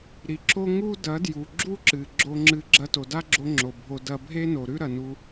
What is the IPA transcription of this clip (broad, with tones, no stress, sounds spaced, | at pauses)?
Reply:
ɾ i˨˦ ǁ o˦ ŋ u˦ d ɐ˨˦ d j u˨ ɡ͡ǁ u˦ ǁ ɨ˨ ɡ͡ǁ o˧ ŋ͡ǁ ɨ˧ ɡ͡ǁ ɐ˧ t o˨ d a˦ ɡ͡ǁ o˧ ŋ͡ǁ o˨ bʱ o˧ d ɐ˧ bʱ e˦ n o˨ ɾ ʉ˦ ɾ ɐ˨ n u˧